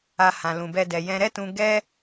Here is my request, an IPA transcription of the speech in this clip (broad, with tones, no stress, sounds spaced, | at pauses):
a˧ h ã˧ l ũ˧ b ɛ˦ d ɛ˧ j ɛ̃˧ ɾ ɛ˦ t ũ˧ ɡ ɛ˦